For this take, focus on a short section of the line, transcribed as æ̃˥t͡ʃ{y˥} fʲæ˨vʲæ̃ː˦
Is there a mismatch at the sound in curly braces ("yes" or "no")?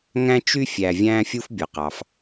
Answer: no